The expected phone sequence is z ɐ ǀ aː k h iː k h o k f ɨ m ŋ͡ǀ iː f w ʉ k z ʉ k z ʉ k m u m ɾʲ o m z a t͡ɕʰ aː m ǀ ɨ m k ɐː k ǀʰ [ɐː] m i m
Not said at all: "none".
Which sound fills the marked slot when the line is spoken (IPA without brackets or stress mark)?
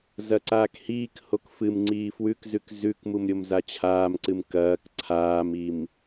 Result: aː